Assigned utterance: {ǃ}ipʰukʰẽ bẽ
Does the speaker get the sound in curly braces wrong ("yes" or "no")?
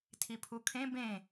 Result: yes